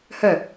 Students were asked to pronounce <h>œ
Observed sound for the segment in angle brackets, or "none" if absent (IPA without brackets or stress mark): h